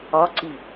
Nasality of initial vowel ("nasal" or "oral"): oral